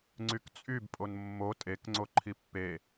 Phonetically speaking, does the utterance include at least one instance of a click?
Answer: yes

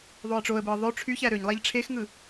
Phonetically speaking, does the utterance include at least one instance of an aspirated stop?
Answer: yes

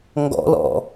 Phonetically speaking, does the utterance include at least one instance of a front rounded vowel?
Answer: no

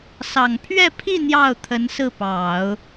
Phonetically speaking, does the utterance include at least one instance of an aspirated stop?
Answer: yes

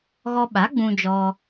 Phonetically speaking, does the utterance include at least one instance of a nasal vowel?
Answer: yes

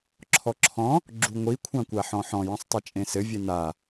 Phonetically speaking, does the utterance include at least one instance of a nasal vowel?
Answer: yes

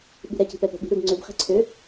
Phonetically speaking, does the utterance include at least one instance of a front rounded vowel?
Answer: yes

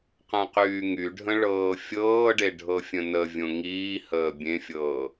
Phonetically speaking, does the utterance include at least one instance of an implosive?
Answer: no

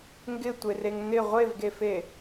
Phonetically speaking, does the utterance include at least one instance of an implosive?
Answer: no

